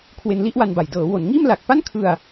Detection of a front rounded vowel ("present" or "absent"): absent